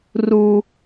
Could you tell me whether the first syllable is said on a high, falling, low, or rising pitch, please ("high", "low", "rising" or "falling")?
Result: high